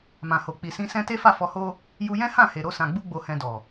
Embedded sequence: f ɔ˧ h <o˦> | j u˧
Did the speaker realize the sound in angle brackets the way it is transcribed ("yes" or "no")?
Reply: yes